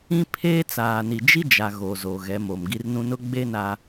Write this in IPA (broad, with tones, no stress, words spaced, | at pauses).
ĩ˦pʰeː˦t͡saː˨ni˨ d͡ʒi˦d͡ʒa˨ ɣoː˨zo˨ɣɛ˨˦mo˨m ɡi˦rnũ˦ nʊ˦ɡ͡be˦ na˦